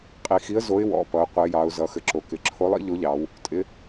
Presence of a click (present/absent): present